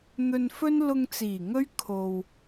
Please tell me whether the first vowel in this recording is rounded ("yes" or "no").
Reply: yes